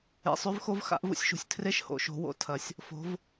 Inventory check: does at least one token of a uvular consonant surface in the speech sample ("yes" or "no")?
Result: no